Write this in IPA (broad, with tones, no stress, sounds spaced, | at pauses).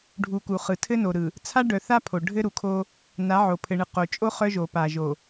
ɖʱ u˨ k u˨ χ ɯ˨ tʰ ɘ˦ n o˨ ɾ ɯ˨ | t͡sʰ a˦ ɖ œ˨ θ a˦ pʰ o˨ ɖʱ ɘ˦ ɾ u˨ kʰ o˦ | n a˨˦ ʕ o˨ pʰ ɘ˨ ɳ ɯ˨ q o˨ t͡ʃʼ o˦ χ œ˦ ʒ o˨ p a˨ ʒ o˨